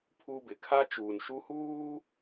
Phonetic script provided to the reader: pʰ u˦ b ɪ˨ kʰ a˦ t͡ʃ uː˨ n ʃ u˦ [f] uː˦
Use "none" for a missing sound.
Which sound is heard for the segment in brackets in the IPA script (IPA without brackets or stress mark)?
h